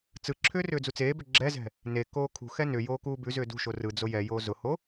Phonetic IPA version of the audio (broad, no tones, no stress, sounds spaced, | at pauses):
t͡s ɯ ǁʰ ʏː r ʏː d͡z u t͡s eː b ʏ ɡ͡ǁ ɛ z ɛ̤ | n e k oː kʰ ṳ x ɛ n ʏ j oː k uː b ʉ z ʏː d ṳ ʃ o r ɯ d͡z o j ɛ j oː z ʊ h o